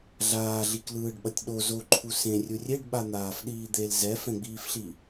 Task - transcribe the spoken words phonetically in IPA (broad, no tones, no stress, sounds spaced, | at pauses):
ɮ aː ɮ i k l ɯː ɖ ɓ ʌ tʲ ɗ o z o ǃʰ u s ẽ rʲ u rʲ e ɖ ɓ a n̪ aː f ɗ iː d̪ e l z ɛ f ɛ̃ ɡ͡b iː f ɬ i